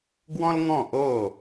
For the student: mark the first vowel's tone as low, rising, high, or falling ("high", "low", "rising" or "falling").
high